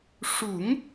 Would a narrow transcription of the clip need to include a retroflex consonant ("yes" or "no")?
yes